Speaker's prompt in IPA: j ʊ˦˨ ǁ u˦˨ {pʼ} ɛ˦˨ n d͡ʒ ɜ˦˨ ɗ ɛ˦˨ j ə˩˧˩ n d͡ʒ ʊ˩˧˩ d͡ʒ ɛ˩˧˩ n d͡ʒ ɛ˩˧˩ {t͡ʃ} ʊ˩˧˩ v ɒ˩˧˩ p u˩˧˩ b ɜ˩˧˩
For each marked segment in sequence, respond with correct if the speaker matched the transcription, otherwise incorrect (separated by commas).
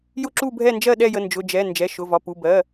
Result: incorrect, incorrect